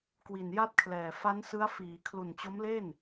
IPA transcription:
k w i˨˩ n j a˥˩ t̚ kʰ l ɛː˨˩ f a˦˥ n s ɯ˦˥ a̯ f iː˩˦ kʰ l u˨˩ n t͡ɕ o˦˥ m l e˥˩ n

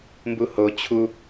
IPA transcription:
m b u h o t͡ɕʰ u

